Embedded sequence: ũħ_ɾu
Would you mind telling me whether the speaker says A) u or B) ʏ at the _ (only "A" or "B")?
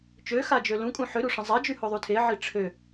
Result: B